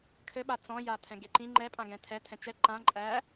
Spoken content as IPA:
kʰɘɓa t͡sɔ̃ja tʰɛ̃ɡeǃĩ ŋ͡ǃɛpʼãɡɛ̃ tʰɛ tʰɛ̃t͡ʃɛ ǃã ǃʼæ

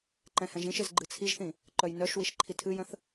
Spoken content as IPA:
ǃɛ̃hɛ̃ʒĩʃɪz ɡ͡ǃɨt͡sʰiʒθĩ | ǃœjnœʃwiʃ ǃʰitʰɨjə̃θ

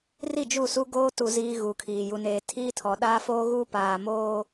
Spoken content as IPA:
ri˦˨d͡ʒu˦˨su˦ ɡoː˦tu˨ ziː˦ɣu˨kʰiː˨ ju˨neː˨ tʰiː˦tʰɔ˨ɗaː˦foː˦ ɣu˦paː˨ moː˦

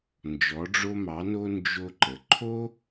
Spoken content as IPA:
nd͡ʒɔ˩˧ɖ͡ʐo˧mɑ˩˧no˧ nd͡ʒo˧ǃə˩ ǃʰo˥

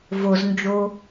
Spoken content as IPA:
voznd͡ʒo

